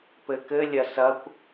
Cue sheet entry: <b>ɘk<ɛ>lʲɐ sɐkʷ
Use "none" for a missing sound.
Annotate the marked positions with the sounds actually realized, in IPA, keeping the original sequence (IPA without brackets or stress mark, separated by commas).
p, ɘ